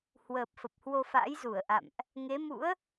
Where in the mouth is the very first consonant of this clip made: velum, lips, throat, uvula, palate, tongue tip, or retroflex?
throat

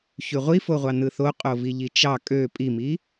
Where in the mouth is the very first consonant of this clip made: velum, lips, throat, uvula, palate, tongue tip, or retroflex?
palate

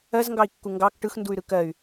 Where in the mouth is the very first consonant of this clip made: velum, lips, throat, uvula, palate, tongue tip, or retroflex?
tongue tip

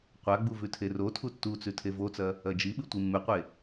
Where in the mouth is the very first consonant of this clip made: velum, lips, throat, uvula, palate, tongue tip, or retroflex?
uvula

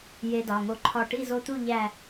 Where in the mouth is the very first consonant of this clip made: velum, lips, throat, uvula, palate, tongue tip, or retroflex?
palate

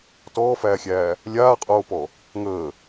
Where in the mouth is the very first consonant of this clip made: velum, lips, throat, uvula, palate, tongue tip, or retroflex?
tongue tip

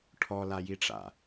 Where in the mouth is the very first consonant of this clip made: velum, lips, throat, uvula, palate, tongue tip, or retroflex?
retroflex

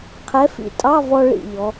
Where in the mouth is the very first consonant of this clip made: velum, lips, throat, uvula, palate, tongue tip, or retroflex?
uvula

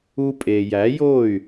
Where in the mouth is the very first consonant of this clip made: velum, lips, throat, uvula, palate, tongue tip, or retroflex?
lips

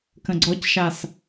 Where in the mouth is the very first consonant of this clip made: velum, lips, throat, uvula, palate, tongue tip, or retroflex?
velum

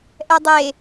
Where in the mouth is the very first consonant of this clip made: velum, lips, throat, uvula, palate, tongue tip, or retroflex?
throat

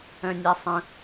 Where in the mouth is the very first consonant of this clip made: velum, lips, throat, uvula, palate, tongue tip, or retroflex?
tongue tip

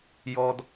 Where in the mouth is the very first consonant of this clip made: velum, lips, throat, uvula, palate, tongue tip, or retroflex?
palate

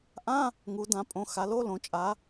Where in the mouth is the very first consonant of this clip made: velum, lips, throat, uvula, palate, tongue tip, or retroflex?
throat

